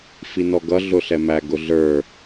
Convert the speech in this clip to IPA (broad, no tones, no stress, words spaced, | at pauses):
finɔɡʌ ɮʊɬɛmæ ɡʊɮə˞